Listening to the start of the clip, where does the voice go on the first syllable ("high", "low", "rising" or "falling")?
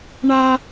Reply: high